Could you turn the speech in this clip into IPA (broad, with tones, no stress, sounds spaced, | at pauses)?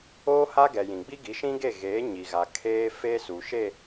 oː˦ h a˦ ɡ ɛ˨ j ĩ˨ ɡ͡b i˦ ɡ i˨˦ ʃ ĩ˦ ɡ e˦˨ ɣ eː˨˦ ɲ i˨ ɣ a˨ kʰ eː˦ f e˦ s u˨ ʃ e˦˨